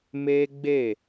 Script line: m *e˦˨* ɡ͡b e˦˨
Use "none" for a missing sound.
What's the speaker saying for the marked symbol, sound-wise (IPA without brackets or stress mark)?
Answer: e˦